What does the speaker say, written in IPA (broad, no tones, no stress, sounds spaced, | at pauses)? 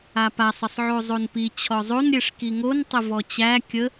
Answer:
a p a sˤ ə sˤ ʕ o zˤ o n p i t͡ɕʰ ɔ zˤ o n ɾʲ e ʂ k i ŋ o n tˤ ə v ɔ t͡ɕ æ kʲ ə